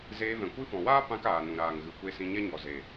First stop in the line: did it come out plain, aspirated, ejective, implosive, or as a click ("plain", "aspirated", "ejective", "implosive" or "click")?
plain